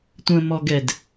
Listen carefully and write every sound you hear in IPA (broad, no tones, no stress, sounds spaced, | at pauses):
tʷ ə̃ m ɔ ɡ ɛ d